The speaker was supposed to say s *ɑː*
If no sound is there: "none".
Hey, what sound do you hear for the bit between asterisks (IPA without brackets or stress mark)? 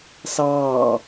ɑː